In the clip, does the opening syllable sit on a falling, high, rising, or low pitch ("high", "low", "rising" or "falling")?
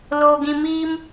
low